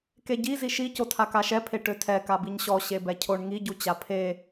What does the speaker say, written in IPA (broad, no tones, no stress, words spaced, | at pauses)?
keɟi ziʃi cotʰakaʃɛ pʰeʈøtʰɛ kabiɲɕɔ ɕebɛcʰoɳ ŋi ɟut͡ɕapʰe